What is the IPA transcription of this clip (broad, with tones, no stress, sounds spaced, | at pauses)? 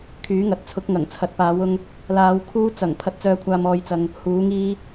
kʰ yː˨˥ ŋ ɐ˨ t̚ t͡sʰ ʊ˨˥ k̚ ŋ ɐ˨˩ ŋ t͡sʰ ɐ˨ t̚ p aː˨˧ w ʊ˧ ŋ | l aː˨˧ w kʰ uː˧ t͡s ɐ˨˩ ŋ pʰ ɐ˥ t̚ t͡s œː˥ kʷʰ aː˥ m ɔː˧ j t͡s ɐ˧ ŋ | h uː˨˥ ŋ iː˥